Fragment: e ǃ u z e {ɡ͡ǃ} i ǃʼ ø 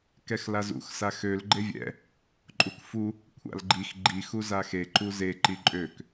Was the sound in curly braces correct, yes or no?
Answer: no